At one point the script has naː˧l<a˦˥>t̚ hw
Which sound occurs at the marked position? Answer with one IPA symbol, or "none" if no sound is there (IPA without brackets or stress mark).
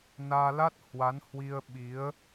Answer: a˦˥